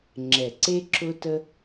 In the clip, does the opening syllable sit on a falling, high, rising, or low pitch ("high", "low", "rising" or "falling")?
low